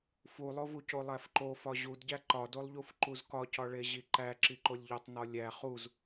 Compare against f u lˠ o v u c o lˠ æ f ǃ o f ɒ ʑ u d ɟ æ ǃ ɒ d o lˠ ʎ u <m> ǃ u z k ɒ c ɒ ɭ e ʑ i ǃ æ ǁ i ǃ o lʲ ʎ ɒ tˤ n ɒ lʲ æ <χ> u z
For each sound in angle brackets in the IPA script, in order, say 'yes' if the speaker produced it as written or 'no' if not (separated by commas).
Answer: no, yes